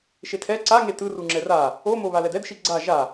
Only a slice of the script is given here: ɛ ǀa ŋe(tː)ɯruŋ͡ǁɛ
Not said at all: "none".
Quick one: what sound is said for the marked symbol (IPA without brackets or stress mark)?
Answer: t